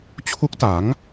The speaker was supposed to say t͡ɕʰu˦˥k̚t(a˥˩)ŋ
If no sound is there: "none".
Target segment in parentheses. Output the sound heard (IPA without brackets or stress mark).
a˩˦